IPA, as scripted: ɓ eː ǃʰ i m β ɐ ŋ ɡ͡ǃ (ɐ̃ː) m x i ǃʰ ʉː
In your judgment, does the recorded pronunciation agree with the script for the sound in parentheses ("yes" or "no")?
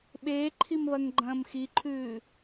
yes